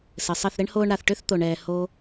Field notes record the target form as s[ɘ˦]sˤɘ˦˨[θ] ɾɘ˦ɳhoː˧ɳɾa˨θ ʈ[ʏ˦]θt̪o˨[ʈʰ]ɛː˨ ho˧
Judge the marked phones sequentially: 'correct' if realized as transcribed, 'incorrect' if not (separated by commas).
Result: incorrect, correct, correct, incorrect